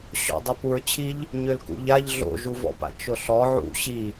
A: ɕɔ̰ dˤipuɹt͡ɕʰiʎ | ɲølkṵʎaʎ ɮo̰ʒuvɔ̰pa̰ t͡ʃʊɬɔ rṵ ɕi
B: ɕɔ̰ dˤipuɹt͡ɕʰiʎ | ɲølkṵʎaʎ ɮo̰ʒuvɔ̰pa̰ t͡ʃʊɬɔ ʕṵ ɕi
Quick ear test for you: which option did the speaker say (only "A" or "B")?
B